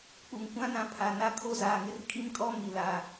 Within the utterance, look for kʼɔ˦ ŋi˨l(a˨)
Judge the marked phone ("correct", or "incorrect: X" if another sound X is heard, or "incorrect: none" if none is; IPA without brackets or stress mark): correct